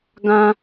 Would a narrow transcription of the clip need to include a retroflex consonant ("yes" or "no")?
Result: no